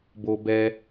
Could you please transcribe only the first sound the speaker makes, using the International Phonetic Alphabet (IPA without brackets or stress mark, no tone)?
b